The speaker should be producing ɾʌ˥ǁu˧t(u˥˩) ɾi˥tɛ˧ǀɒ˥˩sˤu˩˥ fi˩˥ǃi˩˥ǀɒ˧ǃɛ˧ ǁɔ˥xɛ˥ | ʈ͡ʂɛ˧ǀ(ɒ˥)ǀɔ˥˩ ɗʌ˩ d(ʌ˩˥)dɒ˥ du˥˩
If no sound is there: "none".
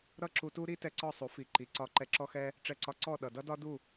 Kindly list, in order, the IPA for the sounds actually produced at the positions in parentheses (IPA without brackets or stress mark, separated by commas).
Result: u˥, ɒ˧, ʌ˥